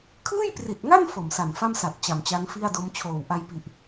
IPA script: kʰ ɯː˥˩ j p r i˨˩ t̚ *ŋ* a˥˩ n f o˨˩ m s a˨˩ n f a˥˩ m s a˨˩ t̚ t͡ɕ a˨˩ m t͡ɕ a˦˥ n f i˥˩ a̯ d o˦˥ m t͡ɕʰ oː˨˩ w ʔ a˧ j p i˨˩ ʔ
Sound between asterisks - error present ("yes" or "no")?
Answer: no